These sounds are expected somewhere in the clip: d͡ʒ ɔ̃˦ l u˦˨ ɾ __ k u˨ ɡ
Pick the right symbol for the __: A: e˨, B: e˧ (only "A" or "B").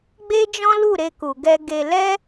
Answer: B